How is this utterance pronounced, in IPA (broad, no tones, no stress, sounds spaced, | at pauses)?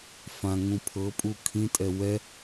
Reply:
f ã ŋ ũ pʰ ɤ pʼ u kʰ ĩ tʼ ɛ w ɛ